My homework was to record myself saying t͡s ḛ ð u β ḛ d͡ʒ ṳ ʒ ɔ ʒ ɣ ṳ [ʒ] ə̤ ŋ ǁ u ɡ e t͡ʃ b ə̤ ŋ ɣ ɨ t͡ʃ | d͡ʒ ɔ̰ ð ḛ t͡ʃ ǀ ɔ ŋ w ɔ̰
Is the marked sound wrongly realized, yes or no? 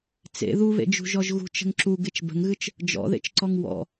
yes